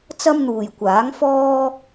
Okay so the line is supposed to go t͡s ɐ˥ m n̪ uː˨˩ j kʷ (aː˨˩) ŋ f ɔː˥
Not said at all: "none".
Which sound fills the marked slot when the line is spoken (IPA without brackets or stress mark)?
aː˨˥